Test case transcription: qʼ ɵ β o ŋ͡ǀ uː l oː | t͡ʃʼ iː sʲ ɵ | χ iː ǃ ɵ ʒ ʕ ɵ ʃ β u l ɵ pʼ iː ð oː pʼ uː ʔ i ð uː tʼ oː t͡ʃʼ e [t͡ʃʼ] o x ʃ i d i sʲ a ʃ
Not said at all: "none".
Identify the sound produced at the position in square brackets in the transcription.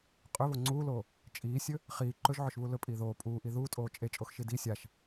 t͡ʃʼ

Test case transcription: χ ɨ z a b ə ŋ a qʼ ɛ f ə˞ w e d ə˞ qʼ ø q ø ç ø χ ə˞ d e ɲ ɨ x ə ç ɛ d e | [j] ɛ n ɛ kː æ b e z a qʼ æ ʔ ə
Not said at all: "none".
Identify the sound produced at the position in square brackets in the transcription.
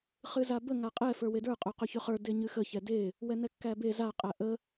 w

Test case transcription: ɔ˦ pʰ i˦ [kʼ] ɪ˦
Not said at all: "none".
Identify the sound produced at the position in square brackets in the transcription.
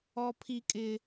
kʼ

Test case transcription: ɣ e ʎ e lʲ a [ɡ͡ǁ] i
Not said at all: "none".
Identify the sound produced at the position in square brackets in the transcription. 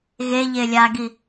ɡ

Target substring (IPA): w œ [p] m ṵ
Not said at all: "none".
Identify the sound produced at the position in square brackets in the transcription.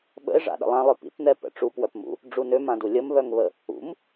p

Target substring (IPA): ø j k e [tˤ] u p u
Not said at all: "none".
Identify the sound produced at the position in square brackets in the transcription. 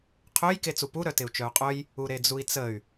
t͡s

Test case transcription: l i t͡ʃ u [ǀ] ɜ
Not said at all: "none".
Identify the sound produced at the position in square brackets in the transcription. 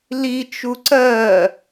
ǀ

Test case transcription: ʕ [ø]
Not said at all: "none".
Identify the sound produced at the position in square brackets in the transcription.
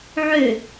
ø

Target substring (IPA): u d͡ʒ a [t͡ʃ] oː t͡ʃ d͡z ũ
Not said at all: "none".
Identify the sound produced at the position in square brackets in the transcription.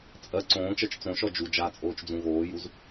t͡sʼ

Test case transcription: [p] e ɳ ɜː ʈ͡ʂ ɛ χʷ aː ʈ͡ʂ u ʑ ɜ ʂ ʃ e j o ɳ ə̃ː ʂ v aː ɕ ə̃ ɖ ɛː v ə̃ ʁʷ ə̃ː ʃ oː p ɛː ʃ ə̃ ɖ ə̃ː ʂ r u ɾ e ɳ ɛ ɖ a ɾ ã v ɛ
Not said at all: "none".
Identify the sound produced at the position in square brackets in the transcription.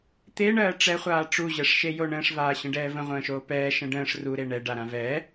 t̪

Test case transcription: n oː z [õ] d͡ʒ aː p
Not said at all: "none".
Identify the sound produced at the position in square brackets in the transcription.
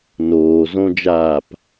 õ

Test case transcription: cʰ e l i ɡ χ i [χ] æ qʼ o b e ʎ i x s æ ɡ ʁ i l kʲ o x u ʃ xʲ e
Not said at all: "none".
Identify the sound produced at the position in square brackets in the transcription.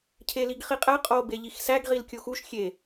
qʼ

